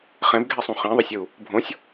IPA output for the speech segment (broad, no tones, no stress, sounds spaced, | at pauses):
χ ɛ̃ b ɡʱ ɛ sˤ ũ χ ĩ ðˤ ʌ sʲ ɯ u̯ | bʱ õ sʲ